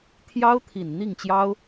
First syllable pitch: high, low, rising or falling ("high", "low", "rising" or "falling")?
high